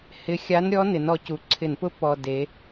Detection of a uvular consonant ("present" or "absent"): absent